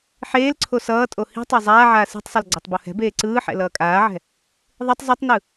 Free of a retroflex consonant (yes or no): yes